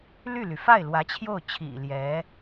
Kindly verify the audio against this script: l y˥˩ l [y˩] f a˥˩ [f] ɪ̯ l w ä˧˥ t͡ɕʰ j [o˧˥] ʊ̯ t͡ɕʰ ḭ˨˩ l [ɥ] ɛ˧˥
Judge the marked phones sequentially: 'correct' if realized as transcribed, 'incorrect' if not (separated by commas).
correct, incorrect, incorrect, incorrect